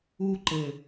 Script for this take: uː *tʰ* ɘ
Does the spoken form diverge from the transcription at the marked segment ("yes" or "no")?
yes